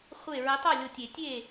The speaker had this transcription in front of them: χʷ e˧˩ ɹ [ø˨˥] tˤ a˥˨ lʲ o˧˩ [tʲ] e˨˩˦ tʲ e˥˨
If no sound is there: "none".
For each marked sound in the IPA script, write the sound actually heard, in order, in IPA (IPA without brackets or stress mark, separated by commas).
ɘ˨˥, tʲ